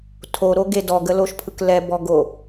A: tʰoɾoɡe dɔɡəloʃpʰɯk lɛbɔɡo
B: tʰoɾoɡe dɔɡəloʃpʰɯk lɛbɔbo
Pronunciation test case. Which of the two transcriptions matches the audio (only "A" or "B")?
A